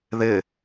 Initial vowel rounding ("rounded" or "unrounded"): unrounded